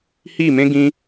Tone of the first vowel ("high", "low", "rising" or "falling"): falling